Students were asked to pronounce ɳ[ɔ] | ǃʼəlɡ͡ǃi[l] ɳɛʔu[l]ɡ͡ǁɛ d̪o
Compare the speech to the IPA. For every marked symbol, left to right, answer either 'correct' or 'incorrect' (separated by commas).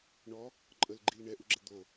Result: correct, correct, incorrect